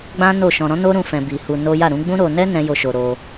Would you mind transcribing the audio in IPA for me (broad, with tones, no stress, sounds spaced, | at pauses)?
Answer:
ɡ͡b ã˦ n o˦˨ ʃ ɔ̃˧ ɾ ɔ̃˦ n o˦ ɾ ũ˧ f ɛ̃˧ b i˧ h u˧ n o˦ j a˦˨ ɾ ũ˨˦ ɡ͡b ũ˦ ɾ o˧ n ɛ˦ n ɛ̃˦ j o˦˨ ʃ o˧ ɾ o˧